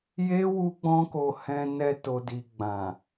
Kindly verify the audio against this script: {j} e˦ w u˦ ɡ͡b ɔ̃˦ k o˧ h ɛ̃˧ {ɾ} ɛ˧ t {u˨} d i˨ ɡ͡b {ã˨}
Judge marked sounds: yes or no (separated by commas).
yes, no, no, yes